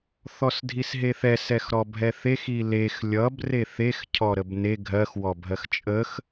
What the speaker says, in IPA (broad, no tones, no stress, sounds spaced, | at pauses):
θ ɔ s dʱ i s ɦ e θ ɛ s ɛ x ɾ ɔ bʱ ɛ θ e x i l e x lʲ ʌ b r e θ e x cʰ ɔ ɾ ə b n e ɡʱ ɜ x w ɔ bʱ ɜ x t͡ʃʼ ə x